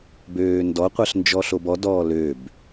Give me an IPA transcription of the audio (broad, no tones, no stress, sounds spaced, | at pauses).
b øː n d ɔ qʷ ɜ ɬ n d͡ʒ ɔ ɬ o b ɔ d ɔː l ø b